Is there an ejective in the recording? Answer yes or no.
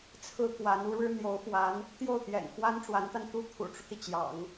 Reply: no